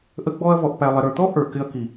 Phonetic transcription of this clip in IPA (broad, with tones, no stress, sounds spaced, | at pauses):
ʔ ə˧ ɡ͡b ɔ˧ ɐ̯ v ɔ˨ ʔ p æ˨ lˠ ɪ˨ ɾ ə˞˨ t̪ ɔ˦ ʔ ə˞˨ k ɪ˧ ɐ̯ k i˨